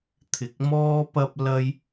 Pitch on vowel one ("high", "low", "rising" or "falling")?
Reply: low